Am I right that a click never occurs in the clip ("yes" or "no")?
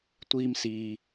yes